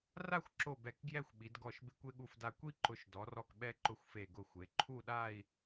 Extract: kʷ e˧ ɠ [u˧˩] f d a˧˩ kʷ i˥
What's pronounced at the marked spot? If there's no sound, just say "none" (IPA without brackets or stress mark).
u˧˩